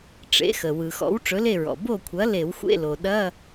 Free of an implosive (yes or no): no